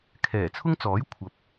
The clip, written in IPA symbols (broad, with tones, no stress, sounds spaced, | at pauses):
kʰ ɛː˨˩ t͡sʰ ʊ˥ ŋ t͡s ɔː˨˥ j kʷʰ ɐ˨ p̚